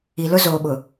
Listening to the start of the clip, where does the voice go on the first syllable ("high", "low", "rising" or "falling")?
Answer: low